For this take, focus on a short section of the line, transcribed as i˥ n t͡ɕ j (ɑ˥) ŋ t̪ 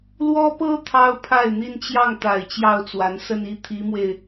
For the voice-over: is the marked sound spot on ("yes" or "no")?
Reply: no